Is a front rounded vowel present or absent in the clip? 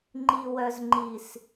present